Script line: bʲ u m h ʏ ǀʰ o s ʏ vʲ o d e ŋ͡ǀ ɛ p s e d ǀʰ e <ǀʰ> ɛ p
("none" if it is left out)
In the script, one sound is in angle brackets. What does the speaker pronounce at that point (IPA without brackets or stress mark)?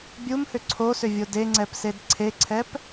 ǀʰ